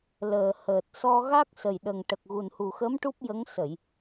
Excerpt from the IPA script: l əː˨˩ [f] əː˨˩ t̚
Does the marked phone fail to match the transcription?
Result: yes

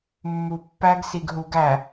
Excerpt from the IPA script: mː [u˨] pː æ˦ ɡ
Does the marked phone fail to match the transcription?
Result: no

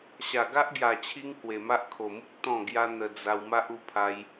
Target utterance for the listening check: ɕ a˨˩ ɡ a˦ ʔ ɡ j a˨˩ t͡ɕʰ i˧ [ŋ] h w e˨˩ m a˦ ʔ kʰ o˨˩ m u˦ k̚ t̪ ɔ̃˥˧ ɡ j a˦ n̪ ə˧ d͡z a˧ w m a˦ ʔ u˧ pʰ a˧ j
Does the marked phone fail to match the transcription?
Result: no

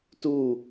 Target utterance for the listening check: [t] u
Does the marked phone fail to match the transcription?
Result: no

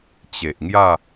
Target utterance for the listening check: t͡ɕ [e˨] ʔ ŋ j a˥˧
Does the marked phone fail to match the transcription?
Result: no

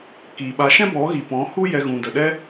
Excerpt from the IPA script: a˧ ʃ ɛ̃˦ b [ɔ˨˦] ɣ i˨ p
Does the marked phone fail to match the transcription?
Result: no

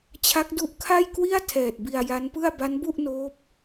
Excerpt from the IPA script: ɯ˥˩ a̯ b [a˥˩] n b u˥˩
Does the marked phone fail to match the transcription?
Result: yes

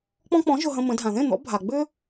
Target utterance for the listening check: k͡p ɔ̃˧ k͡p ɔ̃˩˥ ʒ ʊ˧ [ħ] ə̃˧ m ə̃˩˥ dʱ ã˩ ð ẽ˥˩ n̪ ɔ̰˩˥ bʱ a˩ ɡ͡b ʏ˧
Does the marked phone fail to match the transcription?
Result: yes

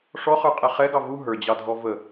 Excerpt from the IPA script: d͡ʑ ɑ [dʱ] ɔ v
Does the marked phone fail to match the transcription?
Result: no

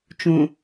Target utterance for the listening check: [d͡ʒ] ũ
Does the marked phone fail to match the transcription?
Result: yes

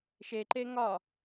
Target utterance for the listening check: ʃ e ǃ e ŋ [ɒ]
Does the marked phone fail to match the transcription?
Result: no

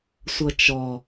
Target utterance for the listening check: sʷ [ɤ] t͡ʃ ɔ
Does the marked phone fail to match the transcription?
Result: no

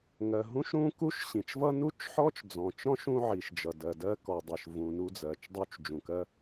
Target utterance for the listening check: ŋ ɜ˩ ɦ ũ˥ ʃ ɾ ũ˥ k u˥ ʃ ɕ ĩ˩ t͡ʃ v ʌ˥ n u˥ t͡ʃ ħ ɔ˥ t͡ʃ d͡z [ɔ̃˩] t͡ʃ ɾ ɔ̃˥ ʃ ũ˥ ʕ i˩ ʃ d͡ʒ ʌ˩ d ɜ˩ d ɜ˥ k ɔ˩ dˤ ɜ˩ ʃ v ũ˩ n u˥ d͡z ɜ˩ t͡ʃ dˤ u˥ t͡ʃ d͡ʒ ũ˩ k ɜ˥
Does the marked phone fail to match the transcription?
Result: no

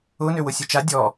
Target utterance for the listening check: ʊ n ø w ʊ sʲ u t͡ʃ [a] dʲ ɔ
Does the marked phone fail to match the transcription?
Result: no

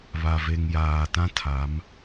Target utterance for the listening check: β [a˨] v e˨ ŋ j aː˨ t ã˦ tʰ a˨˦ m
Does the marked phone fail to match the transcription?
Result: no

